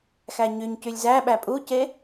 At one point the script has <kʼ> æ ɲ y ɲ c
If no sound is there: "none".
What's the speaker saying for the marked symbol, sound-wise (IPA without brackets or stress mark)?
x